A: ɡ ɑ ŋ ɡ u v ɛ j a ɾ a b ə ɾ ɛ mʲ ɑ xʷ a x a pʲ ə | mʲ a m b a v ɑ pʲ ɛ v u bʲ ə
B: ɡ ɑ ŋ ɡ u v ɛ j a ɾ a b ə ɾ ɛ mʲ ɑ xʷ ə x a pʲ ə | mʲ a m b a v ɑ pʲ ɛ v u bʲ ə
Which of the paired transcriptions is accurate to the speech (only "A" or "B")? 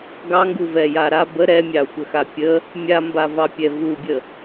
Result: B